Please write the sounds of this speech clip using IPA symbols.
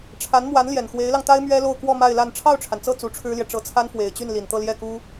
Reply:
ʈ͡ʂʰ a˧˥ n m w a˧˥ n l j ɛ˨˩ n x w e˧˥ ɪ̯ l ɑ˧ ŋ t̪ a˥ ɪ̯ m ɥ ɛ˥ l o˥˧ ʊ̯ k w ɔ˥˧ m a˥˧ ɪ̯ l a˥˧ n ʈ͡ʂʰ ɑ˥˩ ʊ̯ ʈ͡ʂʰ a˩ n t͡s ɤ˥˩ t͡s u˧˥ ʈ͡ʂʰ ɻ̩˥ l j ɛ˨ ʈ͡ʂ ɤ˧˥ t͡sʰ a˥ n f w e˨˩ ɪ̯ t͡ɕ y˥˩ n l i˨˩ n t̪ ɤ˥˧ l j ɛ˥˩ k u˥

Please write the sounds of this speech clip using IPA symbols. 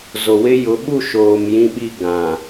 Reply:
z o˨ w ɪ˦ j ʊ˨˦ ɓ u˦˨ ʃ oː˨ m j ĩ˦ ɓ i˦˨ ɡ ã˨

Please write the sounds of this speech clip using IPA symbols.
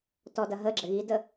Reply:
t ɔ d ɐ ɦ ə ɡ͡ǁ ɘ ɣ i d ə

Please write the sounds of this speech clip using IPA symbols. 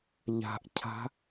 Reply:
ʎ a̤ ʔ cʰ a̤

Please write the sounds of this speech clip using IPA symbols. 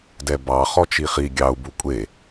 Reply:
d ɛ b ɑ χ ɔ t͡ʃ i χ i ɡʲ ɑ u̯ b u kʷʼ e

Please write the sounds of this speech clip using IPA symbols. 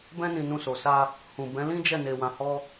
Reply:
b ɛ̃˦ n ĩ˧ n ũ˧ s o˨ s a˧ | h ũ˨ b ɛ̃˨˦ l ĩ˦ d͡ʒ ɛ˦˨ n e˧ w ã˧ h ɔ˦

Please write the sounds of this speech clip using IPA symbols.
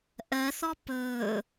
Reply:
ʔ ɜ θ ɔ p ɵː

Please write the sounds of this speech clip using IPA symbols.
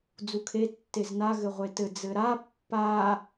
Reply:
d͡z u kʰ e tː e z n a ɣ ɘ ʁʷ e t ɘ d͡z ɘ ɾ a pː a

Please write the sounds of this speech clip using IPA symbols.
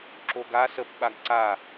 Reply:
ǁ o ɡ a s ə p ɓ a ɡ ǀ a

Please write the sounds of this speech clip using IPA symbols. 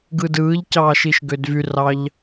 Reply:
ɡ ɯ d ɯː ʎ c ɑː ʃ i ʃ ɡ ø d v y r ɑ ʎ

